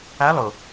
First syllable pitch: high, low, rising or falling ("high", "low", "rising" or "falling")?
rising